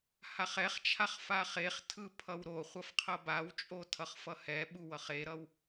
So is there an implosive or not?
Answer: yes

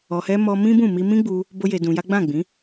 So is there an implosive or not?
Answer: no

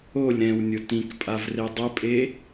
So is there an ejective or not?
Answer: yes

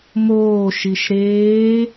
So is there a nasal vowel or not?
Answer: no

